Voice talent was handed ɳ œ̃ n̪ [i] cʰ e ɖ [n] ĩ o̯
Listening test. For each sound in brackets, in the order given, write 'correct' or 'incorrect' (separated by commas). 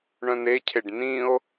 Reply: incorrect, correct